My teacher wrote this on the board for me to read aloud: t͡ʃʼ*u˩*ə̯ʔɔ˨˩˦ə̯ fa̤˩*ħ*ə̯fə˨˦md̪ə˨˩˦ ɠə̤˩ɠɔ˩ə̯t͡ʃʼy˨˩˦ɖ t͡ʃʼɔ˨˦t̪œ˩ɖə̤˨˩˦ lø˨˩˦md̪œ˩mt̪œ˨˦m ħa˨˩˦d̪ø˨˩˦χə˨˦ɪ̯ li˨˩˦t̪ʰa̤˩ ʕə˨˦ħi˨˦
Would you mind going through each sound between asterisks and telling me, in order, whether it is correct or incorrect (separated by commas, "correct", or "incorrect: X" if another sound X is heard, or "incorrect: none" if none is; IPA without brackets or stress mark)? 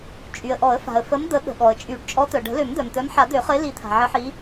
incorrect: y˩, incorrect: none